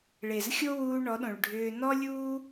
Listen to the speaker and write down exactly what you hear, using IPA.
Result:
ɭe˨zxʲo˦wuː˧ ɳɔ˨˦ɗõ˨ɭɖʱʏː˧ nɔ˦lʲuː˦

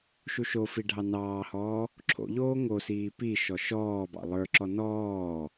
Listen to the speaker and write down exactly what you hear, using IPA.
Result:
ʃuʃofi ɖʱɑnɑːhɔː | ǁʰo̰ʎoː ŋosiː piʃɔ ʃɔːbɑ̰ lˠə˞ǁɔ nɔː

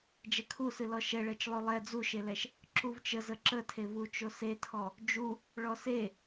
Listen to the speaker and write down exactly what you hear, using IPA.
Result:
d͡ʒɛkʰusɨ lɔʃɛɭɛt͡ʃ lˠolˠɛ d͡zuʃelɛʃ | ǁuvt͡ʃəzə ǁətʰevut͡ʃo setʰɔ | d͡ʒu | ɭɔse

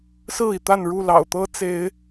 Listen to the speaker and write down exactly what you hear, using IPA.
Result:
sɹ̩˥˨i˩t̪a˥˨nɻu˥˨ lɑ̰˨˩ʊ̯t̪ɤ˦ t͡se˨˦ɪ̯

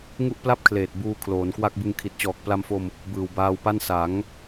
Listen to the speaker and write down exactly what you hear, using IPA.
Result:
ŋu˥˩ʔpla˥˩p̚kʰleː˨˩t̚ buː˧ kʰloː˩˦nkwa˥˩k̚ bɯ˧ŋ kʰi˨˩t̚t͡ɕɔː˨˩k̚ pla˧mfo˧m | bɯː˨˩wbaː˧wpa˥˩n sa˩˦ŋ

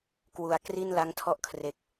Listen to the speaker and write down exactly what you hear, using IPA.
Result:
kwu˨˩a̯kri˥˩nla˦˥ŋtʰɔ˥˩ʔ kʰre˦˥k̚

